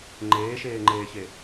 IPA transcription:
ŋ͡ǃ eː ʃ eː ŋ͡ǃ eː ç e

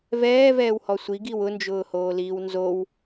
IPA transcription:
v ɛː v ɛː w h ɔ sʷ i ɡ i w ʊ n d͡ʒ ʊː h oː l iː w n z o w

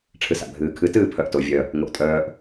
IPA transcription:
ʈ͡ʂʰ ɨ s a̰ bʱ ɨː kʰ ɨ t ɨː pʰ œ ʔ t o vʲ œ | ŋ o ʔ tʼ œː ʔ

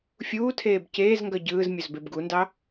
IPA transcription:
fʲ uː tʰ eː b c eː z ŋ ɡ ʌ ɟ ɯː z mʲ ɵ z b e b ɡ u n d ɑ

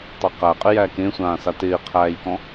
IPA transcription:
tˤ e q æ qʼ ɪ j æ k ẽ sʷ ãː s a t ɪː qʰ æː j k ɔ̃

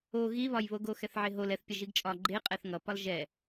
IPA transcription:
o ɣ i β ɒ j β o ɡ o x ɛ θ ʕ e ɦ o l ɛ θ pʲ ʌ ʒ i ɡ t͡ʃʼ ɒ ɡ͡ǃ e qʼ ɛ θ ŋ ʌ p ɒ l ʒ ɛ

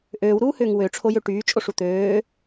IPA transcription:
ʔ øː w ɾ uː h ʏː ŋ w ø ʈ͡ʂʰ o j ø ʈ yː t͡ʃʼ o ʂ u t̪ øː

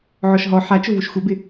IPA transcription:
ʕ ɔ ʃ ɦ ɔ ħ a t͡ʃ ʊ v u ʃ xʷ e b ɪ

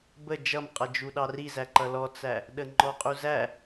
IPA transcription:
b ə d͡ʒ ʌ m qʼ ʌ d͡ʒ u ɗ ɑ r i z æ ǃ ʌ l ɔ t͡s æ | ɗ ə ŋ͡ǃ ɔ qʼ u z æ

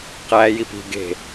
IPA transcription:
q æ j i p i̤ ɡ e̤

